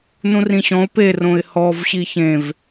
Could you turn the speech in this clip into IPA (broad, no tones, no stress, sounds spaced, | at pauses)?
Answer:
n ũ r ĩ ɕ ɔ̃ ʊ̯ p e r õ ɪ̯ h ɔ v ɕ i ç ẽ v